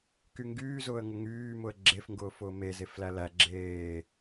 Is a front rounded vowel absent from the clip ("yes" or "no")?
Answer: no